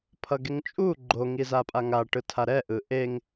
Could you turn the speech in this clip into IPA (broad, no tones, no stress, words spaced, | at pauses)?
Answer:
pʰʌɡeŋt͡ʃʼu ɡ͡ǃo ŋizapʼaŋa ʈɯtʰaɾɛ ʔɯʔeŋ